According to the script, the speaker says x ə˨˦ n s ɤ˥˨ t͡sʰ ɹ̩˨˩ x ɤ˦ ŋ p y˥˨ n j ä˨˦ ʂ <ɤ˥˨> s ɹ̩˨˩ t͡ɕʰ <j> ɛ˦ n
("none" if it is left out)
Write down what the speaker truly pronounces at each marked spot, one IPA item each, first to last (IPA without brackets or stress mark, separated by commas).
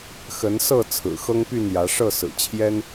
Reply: ɤ˥˨, j